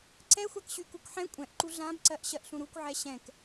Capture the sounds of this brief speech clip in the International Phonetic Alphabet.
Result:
ǀ ɛ xʷ a k ɕ y k u k ħ ɛ̃ kʷʼ ɛ̃ ʔ ǃ u ɮ ã b ǀ ɜ ʔ ɕ ɜ ʔ ɬ ũ ɾ u kʷ ʕ ɛ ɕ ɛ̃ k

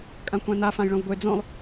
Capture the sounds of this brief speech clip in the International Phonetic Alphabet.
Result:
kʼ ã kʷ ã n a f ã j ɭ õ v ɡʷ e d͡z õ lˠ

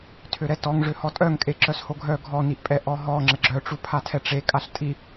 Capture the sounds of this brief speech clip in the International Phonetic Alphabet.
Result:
tʰ ø ɾ ɛ t ɔ ŋ ʐ ø h ɔ tʼ œ ŋ kʼ e ǁ œ s h o ɡʱ œ ɡʱ ɔ n i ʔ pʼ ɛ ʔ ɔ ɦ ɔ ŋ͡ǁ ə ɡ͡ǁ œ ʈ͡ʂ u pʰ a tʰ ɛ ʈ͡ʂ e kʼ a ɬ tʼ i

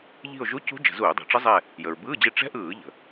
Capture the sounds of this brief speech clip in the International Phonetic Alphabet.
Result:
ʎ i̤˦˨ o̯ ʒ u˧˥˧ c ṳ˦˥ d͡ʒ ə̤˧˩˧ z uː˧˩˧ dˤ ṳ˩ ʈ͡ʂ ə˦˥ zˤ ɛ˦˨ | j ə˩ ɹ b ɯː˧˥˧ d͡ʑ i˦˨ ʈ͡ʂ ɛ̤˦˥ ʔ ɯː˧˩˧ ʎ ə̤˩

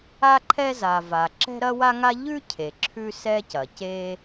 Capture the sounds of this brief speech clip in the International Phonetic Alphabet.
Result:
a˥ ǃʰ ɛ˥ z a˩ v a˩ ǁ ɛ̤˥ ɾ ɐ˥ w a˥ ŋ a˥ ʎ ʉ˥ cʰ e˩ ǁʰ ʉ˥ s ɛ˥ c ɐ˩ c e˥

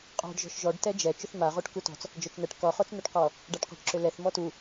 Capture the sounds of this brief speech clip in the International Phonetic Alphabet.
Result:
qʼ ɔ̤ ɖ ʒ ɔ̤ ʃ ʒ ɔ ɖ t ɛ d͡ʒ ɛ t͡ʃ ʏ θ m a ʁ o ʈ k u t ɔ̤ t͡s | d͡ʒ ɔ t͡ʃ n̪ ɛ ʈ k ɔ χ o t͡s n̪ u ʈ q ɔ | ɖ a ʈ q ɔ̤ ʈ ǁ ʏ l ɛ θ m ɔ t u

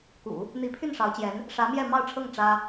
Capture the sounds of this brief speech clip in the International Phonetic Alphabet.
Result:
k ṵ˨˩˦ | n̪ i˧˥ pʰ y˥˩ n ʂ ɑ˧˥ ʊ̯ t͡ɕ j ɛ˧˥ n | ʂ ä˧˥ m j ɛ˥˧ m ɑ˥˧ ʊ̯ ʈ͡ʂʰ ɤ˥˩ ŋ ʈ͡ʂ ä˥

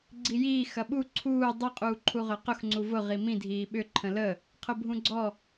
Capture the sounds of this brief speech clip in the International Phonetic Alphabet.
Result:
ɡ͡ǀ i j iː x ɐ ɓ u ǀʰ uː dˤ ʊ qʼ uː ǃʰ u ʁ œ q ʊ x ŋ͡ǀ u v ʊ ʁ i m ĩ dʱ iː ɓ ʏ ǃʰ ə̃ l ə | qʰ ʊ bʱ ũ ɡ͡ǀ ɔ

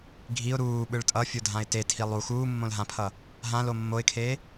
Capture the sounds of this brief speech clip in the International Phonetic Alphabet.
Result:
ɡʱ i ʊ̯ ɾ uː ɓ ɯ ɭ tʼ ʌ fʲ o dʱ ã ɪ̯ t e tʰ i lˠ u x uː mː õ l ɦ ã pʰ ʌ | ɦ ã l o mː o ɪ̯ kʰ eː

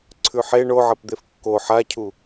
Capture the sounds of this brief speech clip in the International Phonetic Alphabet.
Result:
ǀʰ ʉ ħ e ɳ o ʕ ɐ p d̪ e f kː o ħ a cʰ u

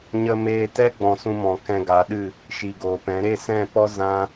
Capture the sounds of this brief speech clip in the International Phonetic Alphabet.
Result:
ɲ ə˧ m eː˧ t ɛ˦ ɡ͡b ɔ̃˨ s ũ˧ m ɔ̃˨ k ɛ̃˧ ɡ a˨˦ ɗ ɨ˦˨ | ʃ i˨ ɡ oː˨ p ɛ̃˨˦ ɾ e˦˨ s ɛ̃˦˨ p ɔ˦ z ã˦

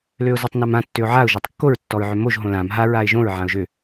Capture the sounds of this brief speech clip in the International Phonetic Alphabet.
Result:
l ø ʊ̯ z a tˤ n a m ã tː ø ʊ̯ ʕ a ʊ̯ ʒ ɔ tˤ kː o ɹ tː ɔ ɹ ʕ ø m o ʒ ɦ õ l ã m ɦ a ɹ a ɪ̯ ʒ õ ɹ ʕ ã ʊ̯ ʒ ø

